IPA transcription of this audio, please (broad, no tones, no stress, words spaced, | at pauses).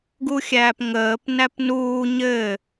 ɡuxʲæːpŋəːp næpnuː ɲɘ